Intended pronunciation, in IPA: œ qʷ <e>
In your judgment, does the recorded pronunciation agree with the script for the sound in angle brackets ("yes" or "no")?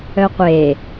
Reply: yes